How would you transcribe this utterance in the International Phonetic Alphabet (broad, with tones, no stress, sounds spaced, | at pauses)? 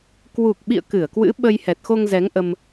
k w u˨˩ k̚ ɓ ḭ˧˨ ə̯ k ɨ˧˩ ə̯ k w ɨ̰˧˥ ɓ ə˧ j h ɛ˨˩ t̚ x o˧ ŋ z ɛ˨˦ ŋ ʔ ə˧ m